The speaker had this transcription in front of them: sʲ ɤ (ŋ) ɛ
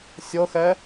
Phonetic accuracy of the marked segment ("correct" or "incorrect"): incorrect